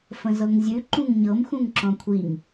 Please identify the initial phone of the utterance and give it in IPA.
f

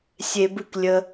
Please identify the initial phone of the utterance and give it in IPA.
sʲ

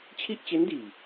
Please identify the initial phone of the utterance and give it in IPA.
t͡ɕʰ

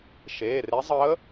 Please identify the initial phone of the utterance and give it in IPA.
ʃ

